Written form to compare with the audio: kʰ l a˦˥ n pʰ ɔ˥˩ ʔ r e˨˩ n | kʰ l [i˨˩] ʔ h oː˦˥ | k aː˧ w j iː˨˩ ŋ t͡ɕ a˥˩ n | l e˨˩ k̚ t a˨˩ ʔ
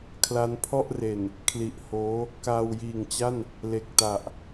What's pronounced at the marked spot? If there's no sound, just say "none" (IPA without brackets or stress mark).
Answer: i˨˩